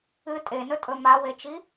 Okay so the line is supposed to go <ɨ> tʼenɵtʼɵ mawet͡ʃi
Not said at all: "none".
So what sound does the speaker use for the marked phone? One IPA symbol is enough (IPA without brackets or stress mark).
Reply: ɨ